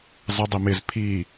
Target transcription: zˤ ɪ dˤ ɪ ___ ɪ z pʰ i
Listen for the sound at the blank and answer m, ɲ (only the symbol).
m